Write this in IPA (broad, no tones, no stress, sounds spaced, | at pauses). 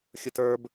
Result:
xʲ ʊ t ə˞ b